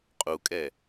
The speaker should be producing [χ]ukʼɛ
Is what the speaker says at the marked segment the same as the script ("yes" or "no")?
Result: no